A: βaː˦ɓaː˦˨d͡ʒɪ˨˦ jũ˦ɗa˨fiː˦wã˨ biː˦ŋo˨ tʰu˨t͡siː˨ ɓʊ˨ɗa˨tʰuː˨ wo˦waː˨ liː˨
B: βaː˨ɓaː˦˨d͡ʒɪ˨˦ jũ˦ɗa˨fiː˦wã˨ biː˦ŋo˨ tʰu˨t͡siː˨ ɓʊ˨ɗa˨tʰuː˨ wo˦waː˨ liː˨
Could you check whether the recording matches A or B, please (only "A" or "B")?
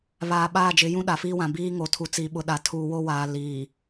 B